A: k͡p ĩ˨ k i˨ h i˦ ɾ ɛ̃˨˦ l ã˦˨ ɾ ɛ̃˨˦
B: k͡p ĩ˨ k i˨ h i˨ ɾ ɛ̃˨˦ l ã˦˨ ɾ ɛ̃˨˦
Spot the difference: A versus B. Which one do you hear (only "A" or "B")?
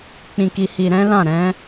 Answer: B